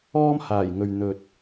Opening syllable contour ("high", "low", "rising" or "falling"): high